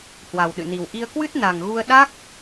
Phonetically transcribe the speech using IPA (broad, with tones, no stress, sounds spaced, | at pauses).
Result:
h w a˨˩ w ɗ ɨ̰˧˨ n i˨˩ w ʔ i˧ ə̯ k w ɨ˦˥ t̚ n a˨˩ ŋ ɣ u˧ ə̯ ɗ a˦˥ k̚